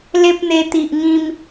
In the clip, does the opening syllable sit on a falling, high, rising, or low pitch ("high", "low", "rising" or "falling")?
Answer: high